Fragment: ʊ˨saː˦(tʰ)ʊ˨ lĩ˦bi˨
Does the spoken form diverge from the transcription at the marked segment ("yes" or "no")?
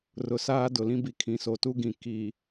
yes